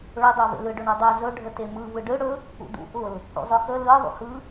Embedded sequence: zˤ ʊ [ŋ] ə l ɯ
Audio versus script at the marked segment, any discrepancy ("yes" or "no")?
yes